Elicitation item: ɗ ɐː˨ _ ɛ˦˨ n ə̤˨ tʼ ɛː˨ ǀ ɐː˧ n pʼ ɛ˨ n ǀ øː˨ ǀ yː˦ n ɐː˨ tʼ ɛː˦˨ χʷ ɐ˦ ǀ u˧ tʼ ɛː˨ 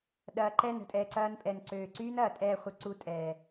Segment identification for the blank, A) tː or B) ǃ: B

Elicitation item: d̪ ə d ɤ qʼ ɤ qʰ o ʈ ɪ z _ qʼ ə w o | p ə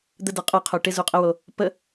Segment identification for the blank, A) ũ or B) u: B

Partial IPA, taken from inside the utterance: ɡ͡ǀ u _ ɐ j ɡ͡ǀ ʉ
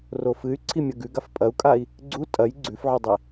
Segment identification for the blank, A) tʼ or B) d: A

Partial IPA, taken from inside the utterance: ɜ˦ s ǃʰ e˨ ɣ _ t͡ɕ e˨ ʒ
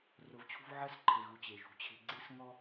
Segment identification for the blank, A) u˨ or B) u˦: A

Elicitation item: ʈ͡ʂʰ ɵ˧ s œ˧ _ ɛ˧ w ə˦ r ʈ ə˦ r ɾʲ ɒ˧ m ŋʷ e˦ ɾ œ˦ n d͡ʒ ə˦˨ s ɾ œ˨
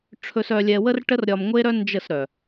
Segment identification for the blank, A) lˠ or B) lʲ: B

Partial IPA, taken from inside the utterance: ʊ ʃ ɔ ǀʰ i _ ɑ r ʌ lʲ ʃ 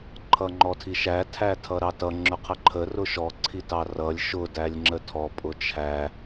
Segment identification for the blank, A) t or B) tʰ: A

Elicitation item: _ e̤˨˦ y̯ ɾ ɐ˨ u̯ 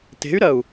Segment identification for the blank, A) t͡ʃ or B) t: B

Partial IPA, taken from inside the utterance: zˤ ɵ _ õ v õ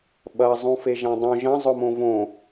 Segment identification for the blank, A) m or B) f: A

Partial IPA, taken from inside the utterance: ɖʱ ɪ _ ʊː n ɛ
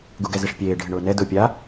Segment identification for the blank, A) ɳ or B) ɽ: A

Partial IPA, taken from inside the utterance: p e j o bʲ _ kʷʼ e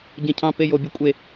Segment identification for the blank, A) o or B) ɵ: B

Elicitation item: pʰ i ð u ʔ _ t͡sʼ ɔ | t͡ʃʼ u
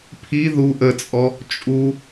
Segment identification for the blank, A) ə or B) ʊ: A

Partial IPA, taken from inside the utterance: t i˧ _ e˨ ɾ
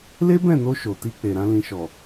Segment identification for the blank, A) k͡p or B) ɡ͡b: A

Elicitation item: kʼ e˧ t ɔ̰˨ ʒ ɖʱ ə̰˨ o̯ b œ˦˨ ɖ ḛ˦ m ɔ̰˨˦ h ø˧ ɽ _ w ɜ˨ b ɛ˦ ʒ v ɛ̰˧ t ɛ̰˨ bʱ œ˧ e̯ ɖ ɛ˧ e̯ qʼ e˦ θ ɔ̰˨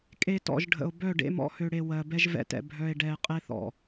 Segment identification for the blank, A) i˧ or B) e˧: B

